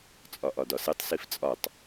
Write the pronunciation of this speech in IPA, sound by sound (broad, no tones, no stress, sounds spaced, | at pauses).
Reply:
t͡sʼ ɒ ʔ ɒ d ɒ s e tˤ s i f t͡sʼ ɒ tˤ